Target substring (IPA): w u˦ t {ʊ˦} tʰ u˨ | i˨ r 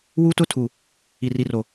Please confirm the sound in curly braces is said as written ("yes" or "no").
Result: yes